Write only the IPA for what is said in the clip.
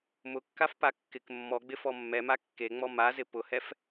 m ʊ kː a f p a kː ɪ k mː ɔ ɡ͡b ɪ f ɔ mː ɛ m a kː e ŋ͡m ɔ m a z ɪ p ʊ h ɛ f

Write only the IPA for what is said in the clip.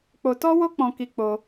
k͡p o˧ t ɔ˦ w o˦ k͡p ɔ̃˦ k i˦ k͡p o˦

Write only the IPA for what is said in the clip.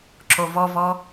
ǁ o v ɔ v ɔ

